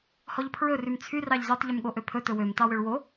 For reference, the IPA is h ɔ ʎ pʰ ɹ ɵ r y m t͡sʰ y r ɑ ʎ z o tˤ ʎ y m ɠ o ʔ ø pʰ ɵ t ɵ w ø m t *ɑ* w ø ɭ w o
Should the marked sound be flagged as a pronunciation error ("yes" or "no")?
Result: no